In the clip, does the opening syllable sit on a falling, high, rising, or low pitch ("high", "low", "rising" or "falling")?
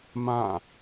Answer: falling